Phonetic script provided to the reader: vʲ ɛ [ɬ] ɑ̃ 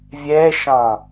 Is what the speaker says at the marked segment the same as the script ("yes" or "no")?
no